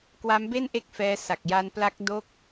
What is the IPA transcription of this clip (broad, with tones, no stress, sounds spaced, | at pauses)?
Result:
k w a˦˥ m b e˥˩ n ʔ e˦˥ k̚ f ɛː˧ s a˨˩ k̚ j a˧ n p l a˦˥ k̚ d o˥˩ k̚